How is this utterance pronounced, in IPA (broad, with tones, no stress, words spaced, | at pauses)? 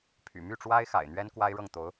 pʰy̰˨˩ my˥˩ʈ͡ʂwa˥ɪ̯ xa̰˨˩ɪ̯n̪ɥɛ˥n kwa˥ɪ̯ɻɤ˥˩ŋt̪o˧˥ʊ̯